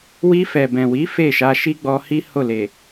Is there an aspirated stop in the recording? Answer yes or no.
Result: no